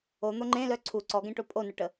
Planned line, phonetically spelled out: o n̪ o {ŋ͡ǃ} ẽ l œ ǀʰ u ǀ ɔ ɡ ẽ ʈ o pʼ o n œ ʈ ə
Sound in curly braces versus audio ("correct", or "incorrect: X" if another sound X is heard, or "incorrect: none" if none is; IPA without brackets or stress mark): correct